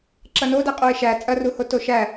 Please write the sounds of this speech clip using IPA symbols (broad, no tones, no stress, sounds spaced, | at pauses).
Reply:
ǁ ɐ n o d æ qʼ o ɪ̯ ʃ æ t͡sʼ ɐ r u h o t o ʃ æ